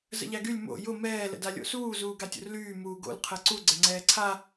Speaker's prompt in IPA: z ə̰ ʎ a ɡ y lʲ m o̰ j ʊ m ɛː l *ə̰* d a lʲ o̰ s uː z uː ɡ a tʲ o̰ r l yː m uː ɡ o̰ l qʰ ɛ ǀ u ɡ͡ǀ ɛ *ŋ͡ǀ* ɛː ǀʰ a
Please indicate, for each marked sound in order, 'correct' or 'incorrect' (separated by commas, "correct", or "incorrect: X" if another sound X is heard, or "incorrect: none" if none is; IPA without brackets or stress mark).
correct, correct